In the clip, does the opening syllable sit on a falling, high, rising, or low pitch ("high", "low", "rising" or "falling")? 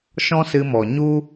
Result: high